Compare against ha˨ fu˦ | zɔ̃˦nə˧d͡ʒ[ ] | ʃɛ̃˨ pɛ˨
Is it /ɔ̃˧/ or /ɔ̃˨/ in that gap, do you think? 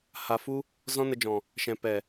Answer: ɔ̃˨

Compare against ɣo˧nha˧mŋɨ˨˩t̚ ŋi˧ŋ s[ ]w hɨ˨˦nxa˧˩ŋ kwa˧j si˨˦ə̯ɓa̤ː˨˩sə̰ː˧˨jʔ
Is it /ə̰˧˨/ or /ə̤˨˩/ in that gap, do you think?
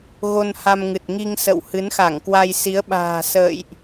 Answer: ə̰˧˨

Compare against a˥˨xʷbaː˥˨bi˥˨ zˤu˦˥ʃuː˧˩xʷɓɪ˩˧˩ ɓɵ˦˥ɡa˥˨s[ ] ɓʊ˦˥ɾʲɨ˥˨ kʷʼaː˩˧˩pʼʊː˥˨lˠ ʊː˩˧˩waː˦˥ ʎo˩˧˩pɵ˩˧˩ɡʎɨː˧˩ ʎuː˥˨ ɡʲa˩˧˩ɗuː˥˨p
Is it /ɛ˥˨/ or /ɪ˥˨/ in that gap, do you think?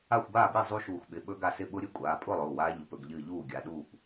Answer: ɪ˥˨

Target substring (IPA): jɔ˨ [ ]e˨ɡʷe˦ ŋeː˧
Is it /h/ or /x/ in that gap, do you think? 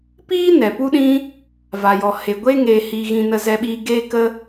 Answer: h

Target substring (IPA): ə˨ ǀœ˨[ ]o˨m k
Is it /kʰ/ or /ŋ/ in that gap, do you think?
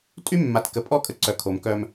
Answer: kʰ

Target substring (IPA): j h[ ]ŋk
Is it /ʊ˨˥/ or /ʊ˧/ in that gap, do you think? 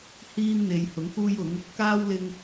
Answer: ʊ˨˥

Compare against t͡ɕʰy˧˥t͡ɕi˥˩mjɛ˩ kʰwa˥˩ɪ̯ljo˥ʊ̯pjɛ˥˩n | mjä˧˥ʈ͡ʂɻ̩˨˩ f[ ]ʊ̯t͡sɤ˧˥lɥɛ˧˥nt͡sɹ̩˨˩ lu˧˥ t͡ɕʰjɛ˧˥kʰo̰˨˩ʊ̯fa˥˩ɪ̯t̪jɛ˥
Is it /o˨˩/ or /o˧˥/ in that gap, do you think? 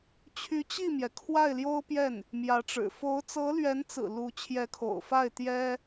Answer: o˧˥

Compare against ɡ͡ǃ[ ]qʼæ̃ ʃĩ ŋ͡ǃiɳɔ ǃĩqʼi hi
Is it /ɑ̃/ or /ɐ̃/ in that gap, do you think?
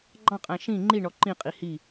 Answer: ɑ̃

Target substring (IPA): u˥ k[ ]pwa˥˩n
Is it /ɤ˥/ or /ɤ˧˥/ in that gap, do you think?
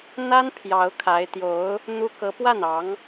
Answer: ɤ˧˥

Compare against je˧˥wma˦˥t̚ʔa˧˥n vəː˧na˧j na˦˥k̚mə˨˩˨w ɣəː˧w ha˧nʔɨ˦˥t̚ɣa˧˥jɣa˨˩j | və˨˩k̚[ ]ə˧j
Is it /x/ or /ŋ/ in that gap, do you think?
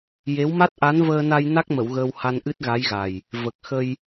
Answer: x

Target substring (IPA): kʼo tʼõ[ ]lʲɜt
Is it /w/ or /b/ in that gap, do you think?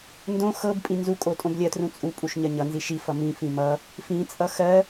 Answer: b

